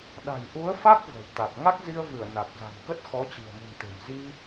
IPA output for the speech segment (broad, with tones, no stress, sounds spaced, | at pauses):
ɗ a̤˨˩ j ʔ u˨˦ ə̯ f a˦˥ k̚ v ə̤˨˩ w t̪ a˨˩ k̚ ŋ a˦˥ k̚ z i˧ ə̯ v ɨ˧˩ ə̯ n a˨˩ k̚ z a̤˨˩ n k ə˦˥ t̚ x ɔ˨˦ t͡ɕ i̤˨˩ ə̯ m ɨ̤˨˩ n t̪ e̤˨˩ m z i˧